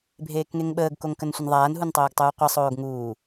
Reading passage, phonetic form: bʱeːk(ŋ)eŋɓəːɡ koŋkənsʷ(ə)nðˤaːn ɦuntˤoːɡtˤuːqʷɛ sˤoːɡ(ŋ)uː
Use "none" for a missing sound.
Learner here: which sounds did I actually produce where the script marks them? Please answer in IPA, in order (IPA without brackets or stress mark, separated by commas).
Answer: ŋ, ə, ŋ